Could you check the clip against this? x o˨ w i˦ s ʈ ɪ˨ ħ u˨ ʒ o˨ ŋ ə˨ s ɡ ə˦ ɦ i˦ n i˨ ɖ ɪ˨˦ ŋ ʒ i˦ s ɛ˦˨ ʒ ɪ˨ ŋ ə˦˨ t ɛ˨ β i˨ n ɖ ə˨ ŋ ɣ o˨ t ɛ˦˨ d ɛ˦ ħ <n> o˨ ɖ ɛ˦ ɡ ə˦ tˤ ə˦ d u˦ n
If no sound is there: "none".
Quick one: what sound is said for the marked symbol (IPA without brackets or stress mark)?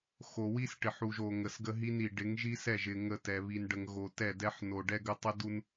n